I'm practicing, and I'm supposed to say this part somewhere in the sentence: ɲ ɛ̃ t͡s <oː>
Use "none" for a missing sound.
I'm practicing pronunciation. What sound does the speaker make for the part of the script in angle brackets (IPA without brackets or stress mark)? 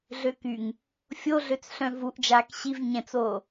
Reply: oː